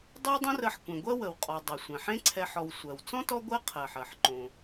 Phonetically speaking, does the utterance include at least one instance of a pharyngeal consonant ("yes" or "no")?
yes